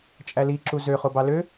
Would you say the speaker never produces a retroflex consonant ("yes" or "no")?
yes